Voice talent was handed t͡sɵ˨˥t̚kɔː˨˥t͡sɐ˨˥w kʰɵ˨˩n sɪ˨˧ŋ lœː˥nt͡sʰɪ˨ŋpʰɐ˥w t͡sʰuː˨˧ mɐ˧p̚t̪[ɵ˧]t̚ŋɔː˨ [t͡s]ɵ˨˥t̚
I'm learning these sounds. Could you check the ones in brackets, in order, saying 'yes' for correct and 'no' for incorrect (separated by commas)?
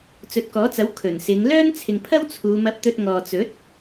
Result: yes, yes